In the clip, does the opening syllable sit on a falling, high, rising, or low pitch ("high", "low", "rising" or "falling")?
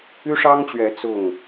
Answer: high